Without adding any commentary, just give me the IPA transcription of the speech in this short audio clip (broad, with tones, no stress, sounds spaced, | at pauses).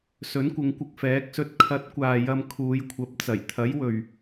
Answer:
s ɵ˨˥ n kʷ ɪ˨˧ ŋ kʷ ɪ˧ k̚ f ɛː˨˥ k̚ s ɵ˧ t̚ kʰ ɐ˨˥ t̚ kʷ aː˨ j ɐ˧ m kʰ uː˨˧ j kʷʰ ɐ˨˥ p̚ t͡s ɐ˨˩ j t̪ʰ ɐ˨˥ j w ɵ˨ ɥ